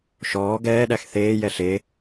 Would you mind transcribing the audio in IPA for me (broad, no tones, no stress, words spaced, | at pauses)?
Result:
ʃɔː ɡɛːɗæx θeːjɛ ɬe